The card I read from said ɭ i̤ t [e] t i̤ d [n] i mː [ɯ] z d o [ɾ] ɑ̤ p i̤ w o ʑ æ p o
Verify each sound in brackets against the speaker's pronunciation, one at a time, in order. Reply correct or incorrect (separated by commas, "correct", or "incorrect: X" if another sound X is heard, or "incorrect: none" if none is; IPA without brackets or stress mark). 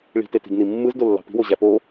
correct, correct, correct, incorrect: lː